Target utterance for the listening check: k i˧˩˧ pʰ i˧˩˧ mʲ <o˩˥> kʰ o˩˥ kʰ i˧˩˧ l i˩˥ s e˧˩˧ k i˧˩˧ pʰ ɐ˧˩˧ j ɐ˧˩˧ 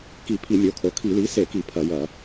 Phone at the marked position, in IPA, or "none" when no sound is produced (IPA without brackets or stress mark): o˩˥